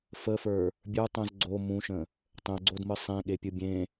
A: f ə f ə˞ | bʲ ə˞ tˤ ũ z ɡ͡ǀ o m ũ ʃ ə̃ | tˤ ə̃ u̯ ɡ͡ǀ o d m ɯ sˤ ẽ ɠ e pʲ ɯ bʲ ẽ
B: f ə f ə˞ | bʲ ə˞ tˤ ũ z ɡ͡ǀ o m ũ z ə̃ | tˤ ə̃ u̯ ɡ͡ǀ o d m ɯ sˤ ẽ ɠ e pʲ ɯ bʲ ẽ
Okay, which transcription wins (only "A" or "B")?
A